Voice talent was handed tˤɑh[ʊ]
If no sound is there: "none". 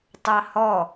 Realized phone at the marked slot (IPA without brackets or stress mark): ɔ